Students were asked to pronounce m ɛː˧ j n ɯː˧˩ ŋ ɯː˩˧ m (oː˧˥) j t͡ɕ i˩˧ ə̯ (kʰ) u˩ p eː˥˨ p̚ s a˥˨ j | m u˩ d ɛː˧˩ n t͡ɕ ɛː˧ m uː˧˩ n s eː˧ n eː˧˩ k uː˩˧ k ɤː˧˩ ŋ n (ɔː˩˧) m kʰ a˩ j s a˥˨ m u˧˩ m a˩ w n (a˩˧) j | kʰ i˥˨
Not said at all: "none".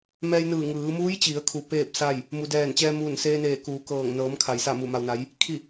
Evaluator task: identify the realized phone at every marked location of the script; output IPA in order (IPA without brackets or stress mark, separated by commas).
uː˧˥, kʰ, ɤː˩˧, a˩˧